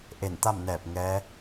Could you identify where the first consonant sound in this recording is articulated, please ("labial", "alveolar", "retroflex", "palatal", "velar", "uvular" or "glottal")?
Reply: glottal